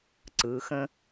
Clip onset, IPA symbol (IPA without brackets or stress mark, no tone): ǀ